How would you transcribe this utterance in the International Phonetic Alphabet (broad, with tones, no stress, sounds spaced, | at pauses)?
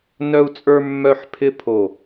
n œ˥ u̯ t͡sʼ ə˞˥ mː œ˥˧ ħ pʰ ɪ˥˧ pʰ o˧˩